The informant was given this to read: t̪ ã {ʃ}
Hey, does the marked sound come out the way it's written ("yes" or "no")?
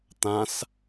no